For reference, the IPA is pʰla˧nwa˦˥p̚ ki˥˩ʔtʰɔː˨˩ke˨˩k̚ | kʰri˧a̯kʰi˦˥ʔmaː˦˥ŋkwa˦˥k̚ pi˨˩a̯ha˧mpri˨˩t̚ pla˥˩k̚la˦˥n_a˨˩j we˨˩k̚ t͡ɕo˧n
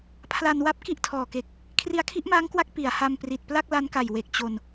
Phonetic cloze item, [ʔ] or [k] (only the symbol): k